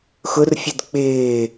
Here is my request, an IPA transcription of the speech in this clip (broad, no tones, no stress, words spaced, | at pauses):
xʊrfʲəd k͡pɪː